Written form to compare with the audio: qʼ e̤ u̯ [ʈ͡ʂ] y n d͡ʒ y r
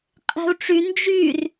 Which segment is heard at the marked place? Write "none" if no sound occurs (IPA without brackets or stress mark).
ʈ͡ʂ